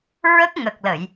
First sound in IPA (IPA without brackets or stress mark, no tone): ɹ